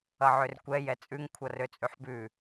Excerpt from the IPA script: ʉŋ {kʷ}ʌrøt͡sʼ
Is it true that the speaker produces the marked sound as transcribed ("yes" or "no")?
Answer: no